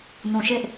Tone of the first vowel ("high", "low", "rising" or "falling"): low